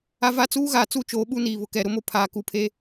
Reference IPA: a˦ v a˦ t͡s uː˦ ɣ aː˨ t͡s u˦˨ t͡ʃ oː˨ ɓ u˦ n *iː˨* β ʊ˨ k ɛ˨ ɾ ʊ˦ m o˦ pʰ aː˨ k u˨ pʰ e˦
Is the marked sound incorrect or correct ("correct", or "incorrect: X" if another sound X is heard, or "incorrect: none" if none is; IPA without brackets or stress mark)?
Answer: correct